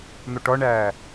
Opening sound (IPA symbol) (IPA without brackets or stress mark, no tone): n̪